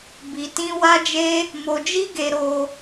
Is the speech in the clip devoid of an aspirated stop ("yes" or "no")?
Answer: yes